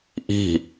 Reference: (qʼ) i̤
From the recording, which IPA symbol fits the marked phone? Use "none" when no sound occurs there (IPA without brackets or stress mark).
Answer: ʔ